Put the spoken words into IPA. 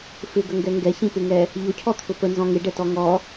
f ɪ ɡ ə ŋ ɡ ɛ ŋ ɡ ɛ ç ĩ p ɪ ŋ ɛ | ʎ ʊ cʰ ɔ t̪ʰ ʊ p ə n z ɔ̃ ŋ ɪ ɖ ɛ t ɔ ŋ ɔ

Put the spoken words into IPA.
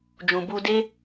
d͡ʒ ũ˨ b u˧ d e˦

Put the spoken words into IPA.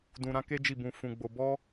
d ũ˧ ɾ ã˦ k e˦ d͡ʒ i˦˨ b ũ˧ f ũ˧ ɡ͡b o˧ b ɔ˦

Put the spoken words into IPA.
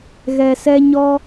ɣ ɛ˨ s ɛ˧ ɲ ɔ˧

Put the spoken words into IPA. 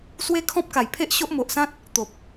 s w e˦ kʰ ɔ̃˦ p̚ k a˨˩ j pʰ e˦ ʔ ɕ o˦ ʔ m o˨ ʔ s ã˦ t̚ | t̪ o˨ p̚

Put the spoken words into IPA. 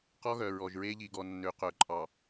q ɔ˦ ɣ œ˨ ɹ ɔ˨ ʒ ɹ e˦ ʎ i˨ ɡ ɔ˨ nː ø˨ q œ˨ ǃʼ ɑ˨

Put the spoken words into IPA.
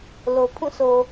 l o˨ pʰ ũ˦˨ s o˨

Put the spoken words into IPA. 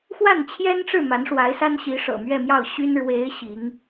x w a˥˩ n t͡ɕʰ j ɛ˥ n ʈ͡ʂ ɻ̩˥˩ m a˧˥ n ʂ w a˧˥ ɪ̯ s a˥ n ɕ i˧˥ ʂ ɤ̰˨˩ m ɥ ɛ˥˧ m j ɑ˥˩ ʊ̯ ɕ y˥ n ɻ w e˧˥ ɪ̯ ɕ i˧˥ ŋ

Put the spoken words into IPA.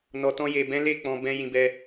n ɔ˨ t ɔ̃˧ j e˨ b ɛ̃˨˦ l e˦˨ k͡p ɔ̃˨ b ɛ̃˨ j ĩ˨ b ɛ˧

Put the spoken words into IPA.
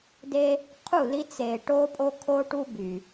d e˦ | qʰ u˦˨ l i˦ t͡s e˨ ʈ o˦ pʼ o˦ kʰ o˦ ʈ u˦ b y˨

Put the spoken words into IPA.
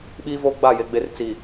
ɓ iː˦ v o˦ ɡ͡b a˦˨ j e˨ ɡ͡b e˨ r t͡s i˨

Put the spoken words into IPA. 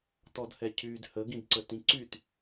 t ɔ d h ɛ cʰ y d h ə ɡ ĩ d ǀ ə t ĩ ǀ y t

